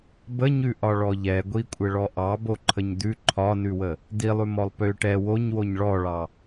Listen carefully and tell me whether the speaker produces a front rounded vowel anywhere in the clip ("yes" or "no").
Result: yes